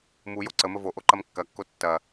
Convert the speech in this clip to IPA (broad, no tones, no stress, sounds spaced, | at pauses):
m u j o ǀ ə m ə v o ʔ o ǃ ɐ m kː ɐ kː o tː ɐ